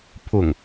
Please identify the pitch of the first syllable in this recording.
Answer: low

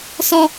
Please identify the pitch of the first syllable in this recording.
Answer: high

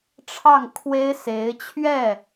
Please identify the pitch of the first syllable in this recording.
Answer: falling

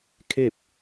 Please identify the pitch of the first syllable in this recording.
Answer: falling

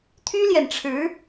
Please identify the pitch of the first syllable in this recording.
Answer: high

